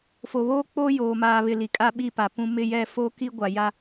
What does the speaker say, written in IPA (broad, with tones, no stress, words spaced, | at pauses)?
fo˨βoː˦k͡po˦ joː˨maː˨βɪ˨ li˨kʼa˦ɓi˦˨pa˨ pũ˨ mɪ˦˨jɛ˦˨foː˦ki˦ ɡʷa˨ja˦